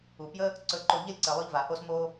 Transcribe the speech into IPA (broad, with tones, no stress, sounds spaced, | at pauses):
u˨ p j ə˦ | ǀ ɵ˧ ǃ o˧ ʎ ə˦˨ lʲ ǀ ə˧ lˠ ɵ˦ ʎ v a˨ h o˦ s m o˦